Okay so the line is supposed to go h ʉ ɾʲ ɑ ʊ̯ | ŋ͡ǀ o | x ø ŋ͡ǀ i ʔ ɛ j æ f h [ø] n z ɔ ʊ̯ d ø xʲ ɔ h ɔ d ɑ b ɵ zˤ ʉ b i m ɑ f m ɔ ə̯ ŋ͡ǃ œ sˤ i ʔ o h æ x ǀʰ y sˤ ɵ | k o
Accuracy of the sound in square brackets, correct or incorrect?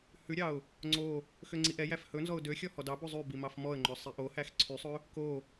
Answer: incorrect